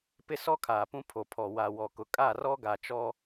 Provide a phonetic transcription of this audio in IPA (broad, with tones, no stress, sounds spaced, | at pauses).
p ɪ˦ s ɔ˦ kʰ aː˨ p ũ˦ pʰ o˨ pʰ ɔ˨ w a˨ w ɔ˨ k ʊ˨ kʼ a˦˨ r ɔ˦ ɡ a˨ t͡ʃ ɔ˦